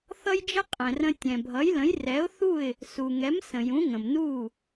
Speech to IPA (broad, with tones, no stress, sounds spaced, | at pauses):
θ ʌ˥ j d͡ʒ ə˥ qʼ ɛ̃˩ r ə̃˧ tʲ ɛ̃˩ bʱ ʌ˩˥ j l ə̃˩˥ j r ɛ˩˥ ʊ̯ θ u˥˩ ɪ̯ | s u˩ ŋ ɛ˩˥ m s ə̃˩ j ũ˩˥ ŋ ə̃˩ m n u˥˩